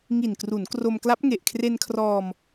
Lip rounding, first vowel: unrounded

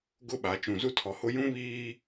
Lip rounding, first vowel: rounded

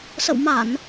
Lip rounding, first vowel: unrounded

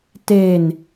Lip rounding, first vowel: unrounded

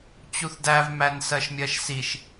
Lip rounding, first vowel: rounded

